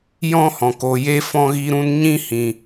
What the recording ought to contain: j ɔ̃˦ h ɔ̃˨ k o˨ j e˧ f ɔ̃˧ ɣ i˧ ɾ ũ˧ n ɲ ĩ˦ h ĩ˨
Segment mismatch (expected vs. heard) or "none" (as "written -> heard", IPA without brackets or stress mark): none